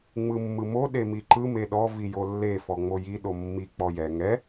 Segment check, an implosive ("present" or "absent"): present